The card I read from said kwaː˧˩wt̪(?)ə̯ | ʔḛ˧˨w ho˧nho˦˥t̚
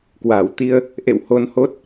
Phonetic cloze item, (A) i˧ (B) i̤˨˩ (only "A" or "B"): A